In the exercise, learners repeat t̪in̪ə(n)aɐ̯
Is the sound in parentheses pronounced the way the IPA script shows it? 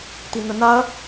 yes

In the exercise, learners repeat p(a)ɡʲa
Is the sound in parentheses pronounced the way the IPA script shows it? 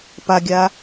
yes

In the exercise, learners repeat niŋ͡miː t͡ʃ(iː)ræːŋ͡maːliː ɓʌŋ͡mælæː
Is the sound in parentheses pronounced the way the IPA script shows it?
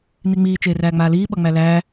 no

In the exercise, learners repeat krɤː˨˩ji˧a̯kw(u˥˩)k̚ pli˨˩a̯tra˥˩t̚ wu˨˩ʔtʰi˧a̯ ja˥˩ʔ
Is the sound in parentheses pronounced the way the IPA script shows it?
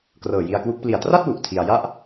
no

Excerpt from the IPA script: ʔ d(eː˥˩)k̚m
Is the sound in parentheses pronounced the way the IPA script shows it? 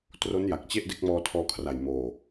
no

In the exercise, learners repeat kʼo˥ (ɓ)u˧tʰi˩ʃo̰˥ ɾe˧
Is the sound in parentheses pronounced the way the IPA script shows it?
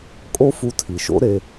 no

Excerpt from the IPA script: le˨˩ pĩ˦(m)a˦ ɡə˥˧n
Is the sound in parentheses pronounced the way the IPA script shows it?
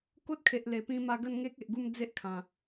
yes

